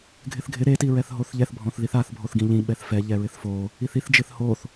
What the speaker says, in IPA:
ɡʱɪθɡʱɪ ɾe tiɹɛθɦoθʎɛθ bʱɔ̃θðiθaθ bʱoθɡĩʎĩ ɓɛθfɛ ʎɛɹɪθfo | iθiθ d͡ʒɪθhoθ

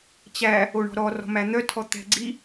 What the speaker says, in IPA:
t͡ɕæ | oɳɔ̤ɾɔ rɔ̤mæn̪œtʰɔ t̪ɛ̤ɡ͡ǀi

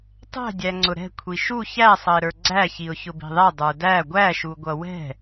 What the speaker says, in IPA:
tˤɛ̤dʲæŋ͡ǀʊ ɾɛ̤ kʷʰiʃu çæsˤʌɪ̯ɾə˞ ɡ͡ǀæçiʊ̯ çʊbi̤ðˤɛ dˤə˞dæ ɡʷæʃuɡʷʌ wɛ̤

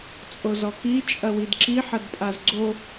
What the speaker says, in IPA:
t͡sʼozɔki t͡ʃʼɐwidǁi ħɐdpʼazɡ͡ǀo

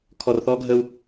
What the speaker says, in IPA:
kʰɔ˨rθɔ˦ɡʱə˦u̯

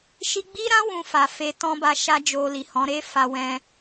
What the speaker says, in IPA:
ʃi˧ɡ͡bi˦ɾã˦ wũ˧fa˨fe˧ tɔ̃˦ba˧ʃa˦d͡ʒo˧ li˨hɔ̃˨˦ɾe˦ fa˦ wɛ̃˦

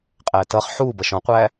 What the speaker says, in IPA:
qʼætʌχ ħuːbʌʃ ɔ̃qʷæː

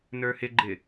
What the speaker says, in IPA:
nə˞hɪɡ͡ǃɪ

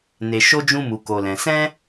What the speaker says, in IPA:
ne˧ʃo˦d͡ʒũ˦ mu˧ko˧lɛ̃˧ sɛ̃˦

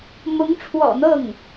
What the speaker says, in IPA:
mʊ˧˥ŋʈ͡ʂʰwɔ̰˨˩n̪ɤ˥˩ŋ

